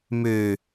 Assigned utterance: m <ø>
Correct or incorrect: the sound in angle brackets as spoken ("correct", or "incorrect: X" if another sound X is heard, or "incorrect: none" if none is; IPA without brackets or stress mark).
correct